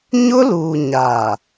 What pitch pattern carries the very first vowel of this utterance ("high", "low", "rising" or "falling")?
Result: high